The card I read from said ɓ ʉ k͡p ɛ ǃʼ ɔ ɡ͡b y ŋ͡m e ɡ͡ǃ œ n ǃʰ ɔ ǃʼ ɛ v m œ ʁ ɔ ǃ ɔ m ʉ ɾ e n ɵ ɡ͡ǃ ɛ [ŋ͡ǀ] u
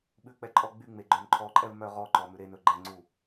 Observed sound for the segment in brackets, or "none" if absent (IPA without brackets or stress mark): ŋ͡ǀ